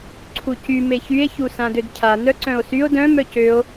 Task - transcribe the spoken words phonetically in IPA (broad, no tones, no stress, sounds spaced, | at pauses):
ǀʰ u c y m e ç y e̯ ç u s ã d ø d cʰ a n œ ǀ œ̃ o̯ s y o̯ d œ̃ m œ c ø o̯